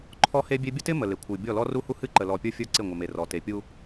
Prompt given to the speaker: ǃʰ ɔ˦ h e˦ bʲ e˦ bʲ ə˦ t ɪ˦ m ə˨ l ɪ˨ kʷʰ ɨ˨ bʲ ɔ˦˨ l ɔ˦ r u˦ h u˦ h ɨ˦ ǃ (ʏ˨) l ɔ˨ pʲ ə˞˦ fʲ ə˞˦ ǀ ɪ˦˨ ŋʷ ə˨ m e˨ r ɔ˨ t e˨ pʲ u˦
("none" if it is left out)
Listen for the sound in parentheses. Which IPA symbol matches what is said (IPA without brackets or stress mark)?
ə˨